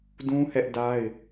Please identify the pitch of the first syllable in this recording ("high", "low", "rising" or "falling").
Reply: high